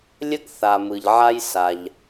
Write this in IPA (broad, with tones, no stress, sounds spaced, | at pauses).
lʲ ə˥ ɡ θ a˩ m ɯ˩ ʎ ʕ a˥ j s a˩ ʎ